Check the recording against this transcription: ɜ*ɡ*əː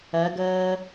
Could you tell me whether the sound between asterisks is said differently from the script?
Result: no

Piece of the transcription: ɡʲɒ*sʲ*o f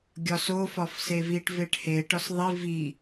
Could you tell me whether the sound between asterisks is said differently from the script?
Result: yes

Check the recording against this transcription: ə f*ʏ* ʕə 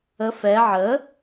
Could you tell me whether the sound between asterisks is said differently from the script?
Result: yes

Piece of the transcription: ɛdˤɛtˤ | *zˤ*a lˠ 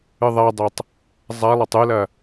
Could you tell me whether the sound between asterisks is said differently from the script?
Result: no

